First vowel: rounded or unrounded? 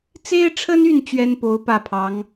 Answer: unrounded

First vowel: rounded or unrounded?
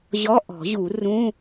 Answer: rounded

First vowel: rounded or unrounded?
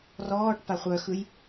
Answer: rounded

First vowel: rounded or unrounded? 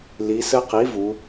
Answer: unrounded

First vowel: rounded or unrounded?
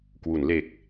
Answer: rounded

